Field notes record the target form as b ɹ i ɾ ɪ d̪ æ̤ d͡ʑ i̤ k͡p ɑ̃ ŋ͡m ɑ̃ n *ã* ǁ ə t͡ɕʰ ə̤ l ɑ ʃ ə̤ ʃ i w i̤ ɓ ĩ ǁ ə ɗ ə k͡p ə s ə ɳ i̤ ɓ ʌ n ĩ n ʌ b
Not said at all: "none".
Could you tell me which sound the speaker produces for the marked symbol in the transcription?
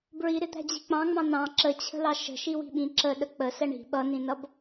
ɑ̃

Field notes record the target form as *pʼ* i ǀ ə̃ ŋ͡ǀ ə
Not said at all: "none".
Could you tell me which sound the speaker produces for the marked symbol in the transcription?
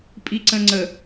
pʼ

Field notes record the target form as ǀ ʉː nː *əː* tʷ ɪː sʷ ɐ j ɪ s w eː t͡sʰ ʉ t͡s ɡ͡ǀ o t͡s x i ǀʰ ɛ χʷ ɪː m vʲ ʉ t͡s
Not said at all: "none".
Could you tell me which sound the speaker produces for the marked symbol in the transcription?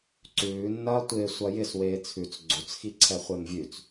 ɐː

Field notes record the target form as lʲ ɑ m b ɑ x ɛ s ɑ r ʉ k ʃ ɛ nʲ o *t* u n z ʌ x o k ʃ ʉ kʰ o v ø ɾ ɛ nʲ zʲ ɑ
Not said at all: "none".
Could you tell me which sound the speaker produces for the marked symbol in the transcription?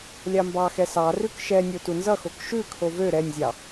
t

